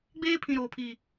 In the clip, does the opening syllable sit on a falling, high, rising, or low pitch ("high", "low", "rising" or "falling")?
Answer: high